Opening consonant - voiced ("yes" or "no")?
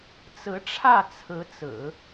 no